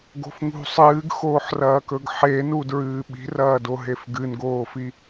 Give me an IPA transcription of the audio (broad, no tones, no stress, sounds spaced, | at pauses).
ɡ o̤ f ŋ ṳ sˤ ɨː ɡ x oː ħ r ɐː k ɵ ɡ ħ e n u d ɹ ɨː ɓ i̤ r ɐː d o ɦ e f ɡ ɨ n ɡ oː f i